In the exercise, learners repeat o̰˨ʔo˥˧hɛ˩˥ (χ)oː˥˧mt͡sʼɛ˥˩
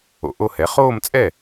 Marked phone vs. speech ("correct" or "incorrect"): correct